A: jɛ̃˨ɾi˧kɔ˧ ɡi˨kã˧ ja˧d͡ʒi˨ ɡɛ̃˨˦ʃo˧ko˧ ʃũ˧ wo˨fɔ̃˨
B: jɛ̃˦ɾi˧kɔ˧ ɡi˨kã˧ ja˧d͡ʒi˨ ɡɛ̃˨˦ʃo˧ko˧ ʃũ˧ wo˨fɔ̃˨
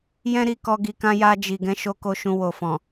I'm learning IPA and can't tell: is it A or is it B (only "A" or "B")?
B